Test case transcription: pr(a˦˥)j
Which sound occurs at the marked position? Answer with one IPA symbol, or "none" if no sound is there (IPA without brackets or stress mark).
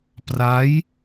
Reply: a˦˥